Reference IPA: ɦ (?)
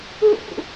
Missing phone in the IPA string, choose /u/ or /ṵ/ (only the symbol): ṵ